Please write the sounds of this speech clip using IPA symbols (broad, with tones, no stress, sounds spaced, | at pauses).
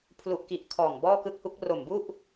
pʰ l u˨˩ ʔ k i˨˩ ʔ kʰ ɔː˨˩ ŋ b ɔː˥˩ k ɯ˥˩ k̚ h u˦˥ k̚ r o˨˩ m b u˥˩ ʔ